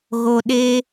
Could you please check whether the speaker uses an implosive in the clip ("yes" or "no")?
yes